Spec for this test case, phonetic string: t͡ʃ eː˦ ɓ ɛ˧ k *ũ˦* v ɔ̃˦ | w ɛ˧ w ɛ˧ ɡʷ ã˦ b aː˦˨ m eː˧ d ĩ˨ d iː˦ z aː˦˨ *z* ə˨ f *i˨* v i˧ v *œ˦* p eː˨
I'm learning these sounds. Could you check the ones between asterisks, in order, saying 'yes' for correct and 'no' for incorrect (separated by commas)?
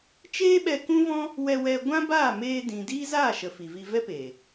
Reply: yes, no, yes, no